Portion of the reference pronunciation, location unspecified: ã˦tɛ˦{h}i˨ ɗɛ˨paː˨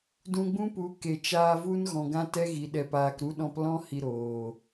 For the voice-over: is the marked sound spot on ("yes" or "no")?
no